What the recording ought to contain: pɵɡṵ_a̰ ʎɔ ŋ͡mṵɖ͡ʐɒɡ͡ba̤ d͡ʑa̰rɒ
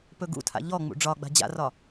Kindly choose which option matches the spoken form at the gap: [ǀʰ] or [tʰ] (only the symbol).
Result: tʰ